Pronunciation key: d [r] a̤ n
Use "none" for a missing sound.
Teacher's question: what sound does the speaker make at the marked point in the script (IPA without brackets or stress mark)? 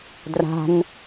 r